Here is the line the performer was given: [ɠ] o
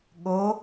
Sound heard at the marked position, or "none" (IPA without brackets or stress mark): ɠ